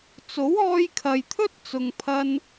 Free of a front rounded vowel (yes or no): yes